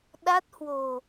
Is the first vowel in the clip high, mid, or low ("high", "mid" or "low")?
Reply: low